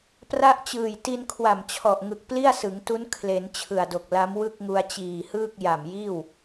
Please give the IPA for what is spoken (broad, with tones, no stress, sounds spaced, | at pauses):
p r a˥˩ ʔ t͡ɕ ɯː˨˩ j t i˧ n kʰ w a˨˩ m t͡ɕʰ ɔ˨˩ ʔ ŋ ɯ˨˩ k̚ p l i˥˩ a̯ s ɯ˩˦ ŋ t u˦˥ n kʰ l e˩˦ n t͡ɕʰ ɯ˨˩ a̯ d o˨˩ k̚ l a˦˥ m w ɯ˥˩ k̚ ŋ u˧ a̯ t͡ɕ iː˨˩ h ɯː˥˩ k̚ j a˨˩ m j iː˥˩ w